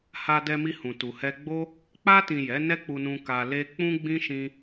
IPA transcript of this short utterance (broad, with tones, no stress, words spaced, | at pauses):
ha˧dɛ˧mi˧hũ˨ tu˨hɛ˧ɡ͡bo˦ | k͡pa˧tĩ˨ jɛ˨˦nɛ˦k͡pu˧nũ˧ ka˧le˦ k͡pũ˦ɡ͡bĩ˦ʃĩ˧